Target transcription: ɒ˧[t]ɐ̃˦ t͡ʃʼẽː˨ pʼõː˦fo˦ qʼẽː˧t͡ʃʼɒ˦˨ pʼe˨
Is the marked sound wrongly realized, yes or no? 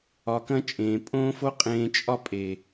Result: yes